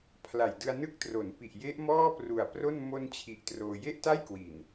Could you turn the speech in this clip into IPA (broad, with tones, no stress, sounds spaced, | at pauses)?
pʰ l a˨˩ j d ɯ˧ a̯ n ɯ˥˩ k̚ t r o˩˦ n p i˨˩ ʔ j e˦˥ ʔ m ɔː˥˩ p r u˨˩ a̯ p r o˥˩ n m o˧ n t͡ɕʰ i˨˩ ʔ t r oː˧ j e˥˩ ʔ t a˥˩ j k w i˨˩ n